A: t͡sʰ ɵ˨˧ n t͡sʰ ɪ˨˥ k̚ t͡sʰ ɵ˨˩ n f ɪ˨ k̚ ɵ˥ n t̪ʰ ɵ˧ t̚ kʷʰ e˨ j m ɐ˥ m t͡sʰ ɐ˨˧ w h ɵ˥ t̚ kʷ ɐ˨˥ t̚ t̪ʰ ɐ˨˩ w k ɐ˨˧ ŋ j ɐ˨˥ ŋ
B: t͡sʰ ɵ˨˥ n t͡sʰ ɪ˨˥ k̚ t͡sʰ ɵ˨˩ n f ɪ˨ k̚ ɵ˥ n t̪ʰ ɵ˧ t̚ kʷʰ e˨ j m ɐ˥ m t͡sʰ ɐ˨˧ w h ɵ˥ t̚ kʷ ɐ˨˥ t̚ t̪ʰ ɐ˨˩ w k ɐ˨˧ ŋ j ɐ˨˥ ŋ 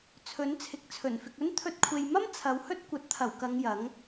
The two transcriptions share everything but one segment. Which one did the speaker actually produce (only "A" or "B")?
B